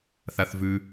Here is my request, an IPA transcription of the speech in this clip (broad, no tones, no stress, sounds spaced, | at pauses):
θ a θ v ʉ